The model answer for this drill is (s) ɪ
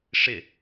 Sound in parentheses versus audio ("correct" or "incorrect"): incorrect